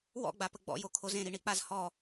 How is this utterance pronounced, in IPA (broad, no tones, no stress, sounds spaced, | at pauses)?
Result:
w ɔ̰ ɡ͡b a p ə ɡ͡b ɔ̰ j o kʰ o z ẽ ɾ i ɳ i k͡p a z h ɔ